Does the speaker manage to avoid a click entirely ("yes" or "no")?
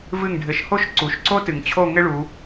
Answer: no